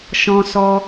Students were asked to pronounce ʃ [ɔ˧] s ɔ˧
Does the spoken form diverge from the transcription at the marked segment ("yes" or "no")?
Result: yes